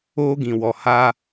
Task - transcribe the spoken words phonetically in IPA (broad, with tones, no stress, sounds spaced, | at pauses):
oː˦ ɡ ĩ˨ w ɔ˨ h a˦